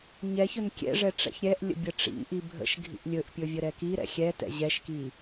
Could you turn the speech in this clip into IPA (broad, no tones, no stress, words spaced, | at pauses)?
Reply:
ɲɛçɵn kʲɛ̰ʐɛ ʈ͡ʂɛ̰çɾʲɛʔlʲə̰ bʲəʈ͡ʂḭʔi bʱə̰ʃɡʱḭʔ lʲɵʔpʲɵ vʲəɾɛkiɾɛ̰ xʲɛtɛ̰ ʑɛʃki